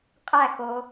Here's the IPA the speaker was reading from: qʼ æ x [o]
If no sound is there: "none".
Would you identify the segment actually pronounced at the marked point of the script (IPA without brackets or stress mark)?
o